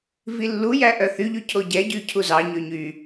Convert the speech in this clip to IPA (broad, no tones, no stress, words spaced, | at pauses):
vilːujæ ʔœθyʎy cʰoɟɛɟy cʰuzɑɲø ɲy